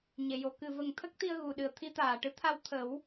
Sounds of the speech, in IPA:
ɲe˨˩˨jo˨˩˨ kɨ˨˩və˨˩ŋt̪ʰə˦˥k̚t̪i˧ə̯ ɣu˨˩ɗɨ˨˩ə̯t̪ʰi˧˥ t̪aː˨˩ʈɨ˧˥ t̪ʰa˧wt̪ʰə˨˩˦w

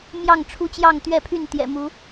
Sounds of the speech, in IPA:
mjɑ˥˨ŋʈ͡ʂʰu˦t͡ɕjɑ˥˨ŋ t̪ɥɛ˥˨pʰy˥˨n t̪jɛ̰˨˩mu˨˦

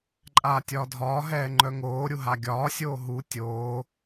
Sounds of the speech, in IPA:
ǃʼaːtʲɒːdʱɒː ɦɛːŋ͡ǃœŋoː ɾʲuɦaɡʲɒː sʲoːɦu tʲoː

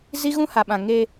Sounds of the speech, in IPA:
zi˦ɣũ˦ha˨ɓã˨ ŋe˦

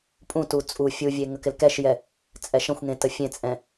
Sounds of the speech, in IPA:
pʼũtu t͡sʼu fʲuvʲe ŋəkɪlkɛʃjɛ | t͡sʼɛʃə̃xʷŋẽ təfʲẽt͡sʼɛ̃

